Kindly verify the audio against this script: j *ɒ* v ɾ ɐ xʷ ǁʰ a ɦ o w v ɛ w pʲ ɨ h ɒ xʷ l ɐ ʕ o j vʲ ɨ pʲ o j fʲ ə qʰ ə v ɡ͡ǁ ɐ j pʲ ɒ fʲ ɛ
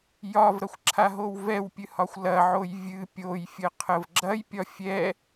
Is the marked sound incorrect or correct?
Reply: correct